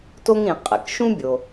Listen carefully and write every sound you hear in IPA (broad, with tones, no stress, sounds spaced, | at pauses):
t o˥ ŋ ɾ ĩ˩ qʼ ɛ̰˩ k ʃ ũ˥ bʲ o˩